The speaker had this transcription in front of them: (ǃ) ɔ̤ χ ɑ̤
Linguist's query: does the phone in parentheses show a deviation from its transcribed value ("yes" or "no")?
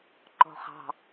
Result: no